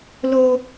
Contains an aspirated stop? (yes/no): no